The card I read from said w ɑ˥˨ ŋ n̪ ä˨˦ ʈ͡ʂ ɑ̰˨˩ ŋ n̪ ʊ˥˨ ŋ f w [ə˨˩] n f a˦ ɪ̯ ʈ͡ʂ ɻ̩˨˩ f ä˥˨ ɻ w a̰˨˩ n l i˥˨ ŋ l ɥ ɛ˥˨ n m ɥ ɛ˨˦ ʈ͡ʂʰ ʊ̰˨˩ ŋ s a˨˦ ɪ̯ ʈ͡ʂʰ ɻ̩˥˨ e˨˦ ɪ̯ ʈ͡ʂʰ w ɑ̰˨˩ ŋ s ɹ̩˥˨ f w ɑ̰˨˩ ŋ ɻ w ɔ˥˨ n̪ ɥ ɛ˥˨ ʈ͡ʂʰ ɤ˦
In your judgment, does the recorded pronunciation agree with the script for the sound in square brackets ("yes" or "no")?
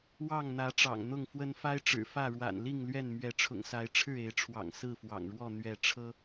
no